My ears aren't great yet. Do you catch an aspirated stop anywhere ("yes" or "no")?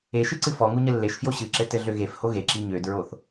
no